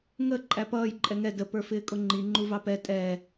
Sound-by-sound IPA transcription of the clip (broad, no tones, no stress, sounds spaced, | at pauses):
ŋ ə ǃʼ æ p ʌː j ǃʼ ɛ ŋ ɛ d ə p ə˞ f ɪː kʼ ʊ ŋ͡ǃ i ŋ͡ǃ u v ɑ p ɛ tʼ ɛ